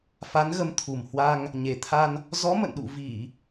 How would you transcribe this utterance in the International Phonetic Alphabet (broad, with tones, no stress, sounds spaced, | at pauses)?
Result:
f a˨˦ n ɣ ə˨˦ m t̪ʰ u˨˩ m h w a˧ ŋ | ɲ e˨˩ t̪ʰ a˧ n | z ɔ˨˦ m ə̰˧˨ n ɗ ṵ˧˨ v i˧˩˨